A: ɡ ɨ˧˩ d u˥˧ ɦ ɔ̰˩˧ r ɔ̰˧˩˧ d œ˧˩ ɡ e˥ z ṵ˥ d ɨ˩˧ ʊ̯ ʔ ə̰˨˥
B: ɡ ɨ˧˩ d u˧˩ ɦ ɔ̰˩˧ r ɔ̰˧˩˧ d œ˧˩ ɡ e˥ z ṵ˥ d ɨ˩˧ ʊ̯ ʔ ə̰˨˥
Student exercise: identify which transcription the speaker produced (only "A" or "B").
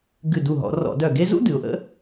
B